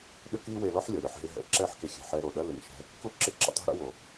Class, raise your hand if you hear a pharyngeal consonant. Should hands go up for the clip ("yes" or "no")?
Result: yes